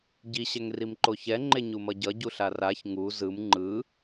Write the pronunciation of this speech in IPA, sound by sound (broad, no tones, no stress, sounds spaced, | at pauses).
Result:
ɟ i ɕ ɛ ŋ r i m ǃ o ç ɛ ŋ͡ǃ e ɲ u m ʌ ɟ ʌ ɟ u ɬ a r a ç ŋ u z ɯ m ŋ͡ǃ ɯ